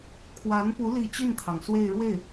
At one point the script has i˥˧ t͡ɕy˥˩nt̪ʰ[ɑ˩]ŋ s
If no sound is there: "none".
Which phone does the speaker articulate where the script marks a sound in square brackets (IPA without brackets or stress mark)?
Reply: ɑ˩